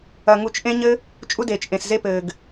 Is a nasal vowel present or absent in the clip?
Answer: present